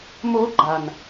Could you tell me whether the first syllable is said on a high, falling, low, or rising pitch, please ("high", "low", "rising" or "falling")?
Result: rising